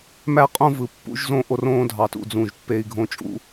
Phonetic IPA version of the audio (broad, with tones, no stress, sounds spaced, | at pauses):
m æ˦ qʼ õ˦ v ɯ˨ pː ṵ˦ ʒ z õ˦ ʔ o˦ r õː˦ dʱ ɑ˨ t ṵ˦˨ d͡z ũ˦˨ ʒ pː e˦ i̯ ɡʱ õ˦ t͡ʃʼ ṵ˦